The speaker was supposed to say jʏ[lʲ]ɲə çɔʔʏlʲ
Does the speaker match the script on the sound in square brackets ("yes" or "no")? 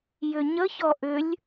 no